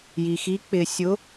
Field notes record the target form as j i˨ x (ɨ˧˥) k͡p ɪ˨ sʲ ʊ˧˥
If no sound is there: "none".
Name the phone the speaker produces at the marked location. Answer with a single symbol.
i˧˥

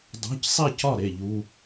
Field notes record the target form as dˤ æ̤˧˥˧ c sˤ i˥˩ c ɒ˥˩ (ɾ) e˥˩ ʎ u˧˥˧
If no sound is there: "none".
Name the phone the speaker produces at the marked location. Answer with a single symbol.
ɾ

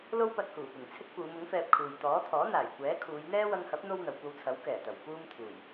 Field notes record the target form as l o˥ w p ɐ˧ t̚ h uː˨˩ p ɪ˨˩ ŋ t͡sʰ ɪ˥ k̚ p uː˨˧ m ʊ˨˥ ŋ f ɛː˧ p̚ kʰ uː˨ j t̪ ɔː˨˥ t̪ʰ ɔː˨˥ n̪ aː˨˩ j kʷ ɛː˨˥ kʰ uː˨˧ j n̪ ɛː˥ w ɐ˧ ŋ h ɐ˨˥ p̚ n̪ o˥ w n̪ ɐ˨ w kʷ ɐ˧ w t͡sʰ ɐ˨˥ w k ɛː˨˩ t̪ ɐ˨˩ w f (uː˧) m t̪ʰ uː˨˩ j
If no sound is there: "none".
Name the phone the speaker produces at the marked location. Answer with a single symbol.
uː˧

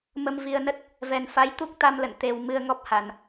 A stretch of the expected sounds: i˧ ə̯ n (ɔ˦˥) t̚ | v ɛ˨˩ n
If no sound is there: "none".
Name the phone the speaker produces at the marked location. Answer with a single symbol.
ə˦˥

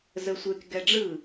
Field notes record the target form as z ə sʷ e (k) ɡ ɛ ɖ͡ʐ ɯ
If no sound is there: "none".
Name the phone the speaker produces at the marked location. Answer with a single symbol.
k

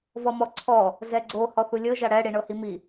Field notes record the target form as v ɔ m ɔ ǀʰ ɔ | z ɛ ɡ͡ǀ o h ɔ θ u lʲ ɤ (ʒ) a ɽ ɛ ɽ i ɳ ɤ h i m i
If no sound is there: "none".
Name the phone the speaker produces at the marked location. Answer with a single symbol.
ʒ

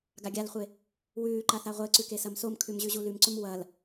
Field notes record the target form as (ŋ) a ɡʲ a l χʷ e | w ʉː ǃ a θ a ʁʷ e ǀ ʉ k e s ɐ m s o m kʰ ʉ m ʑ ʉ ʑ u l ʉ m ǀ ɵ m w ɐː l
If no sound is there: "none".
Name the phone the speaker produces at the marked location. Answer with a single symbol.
ɡ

